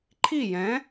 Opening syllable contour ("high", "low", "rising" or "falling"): falling